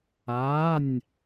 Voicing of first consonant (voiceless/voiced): voiced